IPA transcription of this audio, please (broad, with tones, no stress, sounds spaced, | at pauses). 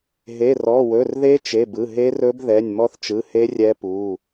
ɦ e˩˧˩ r ɔ˩˧˩ w ɵ˩˧˩ r ð e˦˥ t͡ʃ e˩˧˩ b ɯ˩˧˩ ɦ e˦˥ r ɵ˦˥ b ð ɛ˩˧˩ nʲ m ɔ˦˥ θ t͡ʃ ɯ˩˧˩ h e˦˥ rʲ ɛ˦˥ p u˩˧˩